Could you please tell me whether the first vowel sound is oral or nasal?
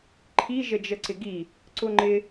oral